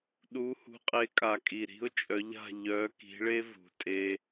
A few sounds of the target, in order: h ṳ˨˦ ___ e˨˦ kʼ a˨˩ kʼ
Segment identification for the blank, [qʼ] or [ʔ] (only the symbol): qʼ